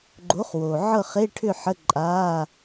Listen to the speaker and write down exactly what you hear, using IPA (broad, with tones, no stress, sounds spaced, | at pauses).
ɡ͡ǃ o˨˥ χ w o˨˩ ʕ ɤ˥˨ χ e˧˥˧ ʈʰ ʏ˥˨ ħ ə˧˥˧ ǃʼ a˧˥˧